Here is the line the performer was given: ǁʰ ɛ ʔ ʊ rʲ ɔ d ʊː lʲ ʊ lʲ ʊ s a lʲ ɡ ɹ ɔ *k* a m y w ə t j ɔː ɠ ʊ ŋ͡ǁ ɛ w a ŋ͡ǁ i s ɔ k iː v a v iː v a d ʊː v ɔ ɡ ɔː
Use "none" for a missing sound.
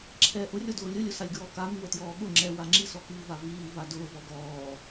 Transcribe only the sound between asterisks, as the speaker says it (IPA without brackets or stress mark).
k